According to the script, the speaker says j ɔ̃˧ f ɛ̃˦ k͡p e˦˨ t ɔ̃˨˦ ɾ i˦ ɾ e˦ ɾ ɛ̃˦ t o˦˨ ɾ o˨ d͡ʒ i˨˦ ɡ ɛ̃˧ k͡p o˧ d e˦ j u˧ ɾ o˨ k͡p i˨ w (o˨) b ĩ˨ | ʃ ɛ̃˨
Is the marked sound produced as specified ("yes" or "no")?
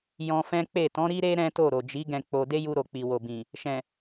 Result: yes